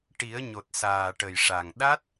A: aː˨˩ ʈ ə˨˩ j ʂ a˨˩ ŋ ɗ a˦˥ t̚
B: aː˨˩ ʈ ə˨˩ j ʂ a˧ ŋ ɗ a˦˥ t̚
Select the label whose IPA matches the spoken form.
A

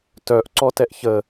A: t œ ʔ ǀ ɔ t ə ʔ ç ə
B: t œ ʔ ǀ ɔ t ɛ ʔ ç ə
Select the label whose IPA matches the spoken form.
B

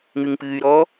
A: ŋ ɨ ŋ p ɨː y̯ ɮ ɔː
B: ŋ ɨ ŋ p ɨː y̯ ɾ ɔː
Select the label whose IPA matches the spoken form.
B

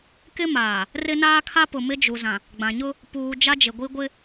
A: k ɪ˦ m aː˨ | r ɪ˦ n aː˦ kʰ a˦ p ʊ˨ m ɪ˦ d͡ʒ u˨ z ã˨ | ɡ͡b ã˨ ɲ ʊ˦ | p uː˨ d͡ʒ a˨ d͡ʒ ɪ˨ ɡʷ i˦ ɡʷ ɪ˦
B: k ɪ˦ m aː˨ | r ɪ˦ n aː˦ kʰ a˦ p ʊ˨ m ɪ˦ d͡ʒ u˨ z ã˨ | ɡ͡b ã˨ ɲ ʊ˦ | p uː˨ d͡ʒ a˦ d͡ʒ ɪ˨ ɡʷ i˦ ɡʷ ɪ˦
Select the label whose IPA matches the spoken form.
B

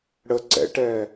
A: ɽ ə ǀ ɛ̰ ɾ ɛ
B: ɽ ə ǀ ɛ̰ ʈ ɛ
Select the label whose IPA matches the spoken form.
B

